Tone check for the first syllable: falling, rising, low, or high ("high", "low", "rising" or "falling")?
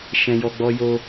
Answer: high